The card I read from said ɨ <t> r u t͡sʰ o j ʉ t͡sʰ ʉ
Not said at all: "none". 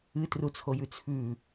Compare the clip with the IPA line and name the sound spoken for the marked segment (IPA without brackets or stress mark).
t